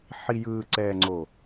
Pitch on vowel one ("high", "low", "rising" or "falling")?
low